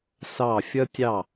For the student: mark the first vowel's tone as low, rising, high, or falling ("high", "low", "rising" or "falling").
falling